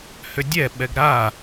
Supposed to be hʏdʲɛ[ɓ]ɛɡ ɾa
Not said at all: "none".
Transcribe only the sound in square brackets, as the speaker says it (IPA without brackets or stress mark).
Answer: ɓ